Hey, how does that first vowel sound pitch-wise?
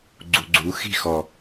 low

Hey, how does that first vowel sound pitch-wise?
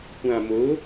low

